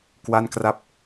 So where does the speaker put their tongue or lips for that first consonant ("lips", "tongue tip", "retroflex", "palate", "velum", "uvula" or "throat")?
velum